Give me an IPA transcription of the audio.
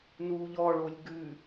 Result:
n uː ʎ ɔ ɭ o lʲ ɡ ʉ

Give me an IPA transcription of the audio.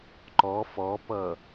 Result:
ǃ ɔ f ɔ p ʌ

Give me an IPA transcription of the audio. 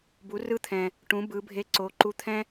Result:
b u˩˧ r ɯ˧ t̪ʰ ɛ̃˩ | ʈ ũ˩˧ b ɯ˩˧ bʱ e˧˥ ǀ o˩˧ ǃ u˧ t̪ʰ ɛ̃˥

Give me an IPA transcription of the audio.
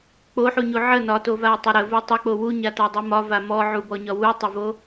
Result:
k͡p o ħ u ɲ u ʕ ə n ɒ t o v a i̯ tˤ o ɾ ə v o tˤ ə k͡p o w u ɲ a t a dˤ u m ɒ v a m ɔ ʕ u b ɔ ɲ ɒ w u tˤ o v o

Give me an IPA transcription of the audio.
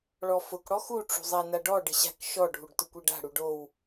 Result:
ɭ ɔ f ʊ k ɽ ɔ x u ʈ͡ʂ ṳ zˤ a n a ɖ ɔ ɖ ɪ ɕ a̤ k ʃ ɔ ɖʱ u ɖ t ʊ kʷ e ɖ a̤ ɽ u ɖ o w

